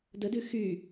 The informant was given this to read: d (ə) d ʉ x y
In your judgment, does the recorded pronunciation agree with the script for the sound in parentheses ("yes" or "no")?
yes